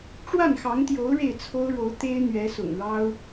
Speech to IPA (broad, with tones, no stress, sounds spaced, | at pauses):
ʈ͡ʂ w a˥˩ n x ɑ˧˥ ŋ t̪ j o˧˥ ʊ̯ ɻ e˥˩ ɪ̯ t͡sʰ o˥ ʊ̯ ɻ o˧˥ ʊ̯ t̪ e˥ ɪ̯ n̪ ɥ ɛ˧˥ s ʊ̰˨˩ ŋ ɻ ɑ˥ ʊ̯